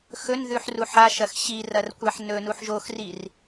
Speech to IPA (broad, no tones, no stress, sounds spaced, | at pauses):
x ɵ n ð ʉ ħ r u ħ a ʃ ɐ x ɕ i r ɐ r kʷ a ħ n ɵ n u ħ ʒ o x r i r